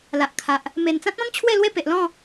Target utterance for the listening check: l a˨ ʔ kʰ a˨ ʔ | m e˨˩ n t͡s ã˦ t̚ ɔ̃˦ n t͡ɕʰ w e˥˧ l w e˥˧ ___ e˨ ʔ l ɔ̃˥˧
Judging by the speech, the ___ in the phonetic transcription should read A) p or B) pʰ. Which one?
A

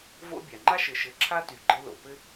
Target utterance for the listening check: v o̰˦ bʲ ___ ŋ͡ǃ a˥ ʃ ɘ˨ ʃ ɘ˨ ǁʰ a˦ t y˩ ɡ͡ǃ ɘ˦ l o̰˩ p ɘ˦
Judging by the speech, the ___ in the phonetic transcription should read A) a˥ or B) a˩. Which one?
B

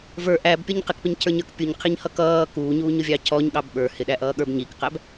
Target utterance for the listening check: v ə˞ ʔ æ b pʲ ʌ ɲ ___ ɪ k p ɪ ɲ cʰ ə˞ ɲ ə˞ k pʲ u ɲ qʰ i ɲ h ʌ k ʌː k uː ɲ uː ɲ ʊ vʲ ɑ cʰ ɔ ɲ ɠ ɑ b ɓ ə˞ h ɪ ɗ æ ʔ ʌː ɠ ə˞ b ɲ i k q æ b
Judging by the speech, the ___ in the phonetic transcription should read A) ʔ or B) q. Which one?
B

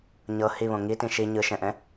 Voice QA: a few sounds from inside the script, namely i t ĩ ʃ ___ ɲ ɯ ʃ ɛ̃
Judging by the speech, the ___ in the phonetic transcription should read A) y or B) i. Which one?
B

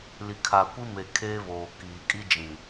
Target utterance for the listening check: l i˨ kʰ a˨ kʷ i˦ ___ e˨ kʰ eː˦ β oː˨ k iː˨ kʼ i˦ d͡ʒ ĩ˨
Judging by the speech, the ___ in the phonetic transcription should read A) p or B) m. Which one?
B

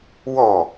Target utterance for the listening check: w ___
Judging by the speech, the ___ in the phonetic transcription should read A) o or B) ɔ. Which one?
B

